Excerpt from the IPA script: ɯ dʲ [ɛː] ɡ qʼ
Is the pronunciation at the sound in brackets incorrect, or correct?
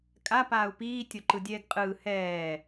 correct